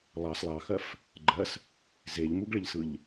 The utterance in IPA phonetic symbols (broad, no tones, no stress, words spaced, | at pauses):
lˠɑs lˠɑxɜf | ɡ͡ǃɜs | zeʎmuɡɭɪʎsɯʎ